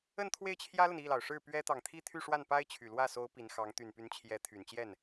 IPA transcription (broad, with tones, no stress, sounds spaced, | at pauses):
ə˥˧ n t̪ʰ w e˥˩ ɪ̯ t͡ɕʰ j ä˥ l ə˨ n i˥˩ l ɑ˩ ʊ̯ ʂ ɻ̩˥˩ p ɥ ɛ˥ t̪ ɑ˨ ŋ t̪ʰ i˥˧ t̪ʰ y˥˧ ʂ w a˥˩ n p a˥ ɪ̯ t͡ɕʰ y˨˩ l w ä˥˩ s o˧˥ ʊ̯ p i˧˥ n x ɑ˧˥ ŋ t̪ y˨˩ n p y˧˥ n t͡ɕʰ j ɛ˧˥ t̪ʰ y˨˩ n t͡ɕ j ɛ˥˩ n